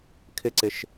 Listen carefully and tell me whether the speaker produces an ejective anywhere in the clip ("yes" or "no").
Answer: no